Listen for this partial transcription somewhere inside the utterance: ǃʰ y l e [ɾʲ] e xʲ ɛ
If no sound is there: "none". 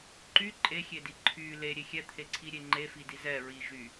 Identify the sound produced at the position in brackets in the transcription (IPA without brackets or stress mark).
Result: ɾʲ